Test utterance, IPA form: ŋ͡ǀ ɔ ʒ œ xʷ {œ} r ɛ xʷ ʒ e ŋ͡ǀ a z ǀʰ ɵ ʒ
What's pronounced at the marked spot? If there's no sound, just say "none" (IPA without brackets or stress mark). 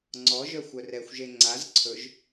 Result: œ